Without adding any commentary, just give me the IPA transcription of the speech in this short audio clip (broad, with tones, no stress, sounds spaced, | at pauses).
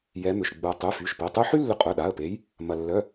j ɛ˨˦ m ʏ˩˧˩ ʃ ɡ͡b u˩ ə̯ tˤ y˩˧˩ f y˩˧˩ ʃ p e˩˧˩ tˤ y˦ ħ y˦ lː ʏ˨˦ qʼ œ˩˧˩ ɗ a˩˧˩ ə̯ p e˨˦ j | m ɐ˩ lː œ˩˧˩